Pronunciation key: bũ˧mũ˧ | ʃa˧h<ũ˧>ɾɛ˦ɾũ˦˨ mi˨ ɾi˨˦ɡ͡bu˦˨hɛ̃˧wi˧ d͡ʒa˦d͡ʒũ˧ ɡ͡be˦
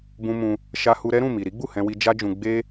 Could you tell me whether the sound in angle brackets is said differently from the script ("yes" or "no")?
yes